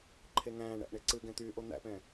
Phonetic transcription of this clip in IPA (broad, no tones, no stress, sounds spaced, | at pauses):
ǃʰ e ŋ æ̃ː ɳ æ̰ ʔ ɳ e ǀ ɨ ɡ ɛ̃ t̪ yː ʔ o n̪ æ̰ p ɛ̃